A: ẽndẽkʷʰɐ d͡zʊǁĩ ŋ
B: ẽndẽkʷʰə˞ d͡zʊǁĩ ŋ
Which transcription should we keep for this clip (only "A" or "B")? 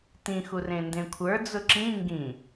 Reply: B